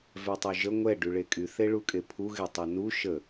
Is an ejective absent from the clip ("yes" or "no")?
no